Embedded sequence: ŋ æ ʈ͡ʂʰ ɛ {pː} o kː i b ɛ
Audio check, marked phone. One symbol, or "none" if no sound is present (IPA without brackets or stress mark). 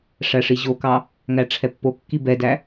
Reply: pː